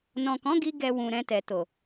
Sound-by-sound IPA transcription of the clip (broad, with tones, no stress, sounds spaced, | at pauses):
n ɔ̃˨ k ɔ̃˨˦ ɡ i˧ ɡ ɛ˨ w ũ˨ ɾ ɛ̃˧ t ɛ˨ t o˨